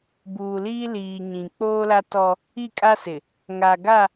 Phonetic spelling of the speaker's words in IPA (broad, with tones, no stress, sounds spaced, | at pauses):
b uː˨ l iː˦ l iː˨ ɲ ĩ˨ k͡p oː˦ l a˦ t ɔ˦ | i˦˨ kʼ a˦ s ɪ˨ | ŋ a˨ ɡ a˦˨